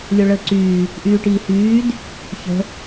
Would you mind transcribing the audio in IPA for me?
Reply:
lʲ o ɭ əː ǀ yː | ʔ yː ʈ iː h yː d | ç ə̤

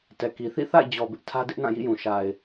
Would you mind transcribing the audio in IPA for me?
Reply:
t ɛ˨ k i˨ θ ḭ˦˨ θ a̰˦˨ ɪ̯ d͡ʑ ɔ˨ b ɪ˦ ʔ tʰ ä˦ d ɪ˦ ʔ n ã˦˨ j ḭ˦˨ j ũ˨ ʃ a˨ ɪ̯

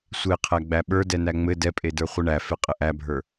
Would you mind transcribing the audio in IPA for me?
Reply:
sʷ e qʰ æ ɡ͡b æ ɓ ə˞ d ɛ n æ ŋ͡m ɘ d ɛ pʼ e d ə˞ χʷ ɨ ɳ æ f e qʼ ɘ ʔ æ bʱ ə˞

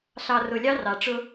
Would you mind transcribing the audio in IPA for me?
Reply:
ɬ ɑ˨ r ʊ˨ lʲ ɑ˦ r ɑ˨ ʈ͡ʂ ʊ˦

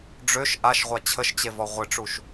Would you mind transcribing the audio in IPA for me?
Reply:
ɖ͡ʐ ø ʃ ʔ a ʃ ʁʷ a t͡ɕʰ ə ʃ t͡ɕ e v ɔ ʁʷ ɪ ʈ͡ʂ u ʃ

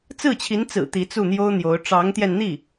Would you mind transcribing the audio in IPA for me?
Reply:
t͡s ɹ̩˥˩ t͡ɕʰ i˧˥ n t͡s ɹ̩˨˩ t̪ i˧˥ t͡s u˥˩ n̪ j o˥ ʊ̯ n̪ j o˧˥ ʊ̯ ʈ͡ʂ ɑ˧˥ ŋ t̪ j ɛ˧ n n̪ i˥˩

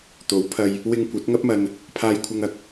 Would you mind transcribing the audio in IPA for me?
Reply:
t̪ o˨˥ w pʰ ɐ˧ j | w ɪ˧ ŋ kʷ ɐ˨˥ t̚ ŋ ɐ˥ p̚ m ɐ˧ n | pʰ aː˧ j kʷʰ ɐ˧ ŋ ɐ˨ k̚

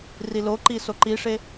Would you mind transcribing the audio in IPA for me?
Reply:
r i l o ǃ i s o ǃ i ʂ e

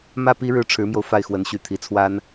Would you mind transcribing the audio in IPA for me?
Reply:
m ä˥˩ p i˥ ɻ ɻ̩˥˩ ʈ͡ʂʰ ɻ̩˧˥ m j o˧ ʊ̯ f a˥˩ ɪ̯ x w ə˧˥ n ɕ y˧˥ t̪ʰ i˧˥ t͡sʰ w a˥ n

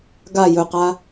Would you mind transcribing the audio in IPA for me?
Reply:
ɡ a j ɵ q a

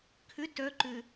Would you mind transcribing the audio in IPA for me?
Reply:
kʰ ʏ t œ ǃ ʏ

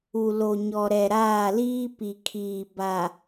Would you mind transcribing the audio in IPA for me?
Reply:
u˨ l o˨ ɲ ɔ˨ ɾ ɛ˨ ɾ aː˦˨ l iː˦ p i˨ kʰ iː˨ b a˨

